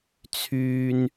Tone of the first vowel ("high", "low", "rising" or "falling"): high